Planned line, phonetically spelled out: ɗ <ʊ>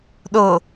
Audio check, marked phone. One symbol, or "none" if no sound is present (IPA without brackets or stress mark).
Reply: ʊ